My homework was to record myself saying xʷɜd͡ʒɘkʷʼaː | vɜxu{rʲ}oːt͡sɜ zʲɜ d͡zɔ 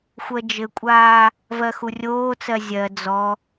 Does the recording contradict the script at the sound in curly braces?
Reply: no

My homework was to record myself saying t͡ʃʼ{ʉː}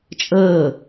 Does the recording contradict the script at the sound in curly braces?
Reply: yes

